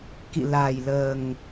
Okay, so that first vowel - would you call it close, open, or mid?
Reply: close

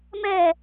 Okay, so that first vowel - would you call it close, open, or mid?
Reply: mid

